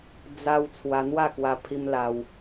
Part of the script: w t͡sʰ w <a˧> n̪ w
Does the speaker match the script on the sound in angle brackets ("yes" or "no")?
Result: yes